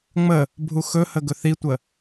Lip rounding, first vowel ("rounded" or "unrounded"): unrounded